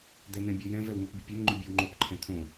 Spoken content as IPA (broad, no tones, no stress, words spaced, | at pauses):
d̪ɛn̪ɛ̃bʲojɛ̃v ɛwŋopbʲəpʲɛn ŋ͡ǃybʲɛwŋ͡ǃop ǃʰɛ̃t̪ʰõ